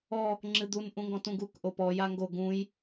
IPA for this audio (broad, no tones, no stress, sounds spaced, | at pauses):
ɔ | ŋ͡ǁ ɨ d̪ u n ʔ ũ ŋ ɡ ɔ̃ t ũ ɡ u k ʔ o p ɔ j a ŋ ɡ o ɡ ũ j